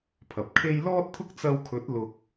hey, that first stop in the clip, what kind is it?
aspirated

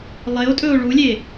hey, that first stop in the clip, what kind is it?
ejective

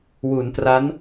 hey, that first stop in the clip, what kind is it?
plain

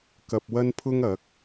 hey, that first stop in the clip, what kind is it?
plain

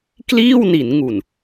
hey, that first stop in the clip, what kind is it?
plain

